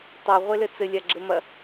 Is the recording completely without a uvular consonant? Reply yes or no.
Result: no